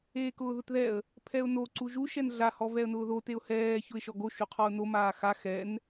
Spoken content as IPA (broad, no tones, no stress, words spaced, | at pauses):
eːkʊːðʊtðɛə̯ | pʰɛʊ̯no ǀuʒu ʃɛnɮa hɔvɛə̯nʊːðo teʊ̯hɛː çʊɪ̯ʃɔɡo ʃuqʰɔʊ̯no maːxa xɛn